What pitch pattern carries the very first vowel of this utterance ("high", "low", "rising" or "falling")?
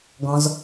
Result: low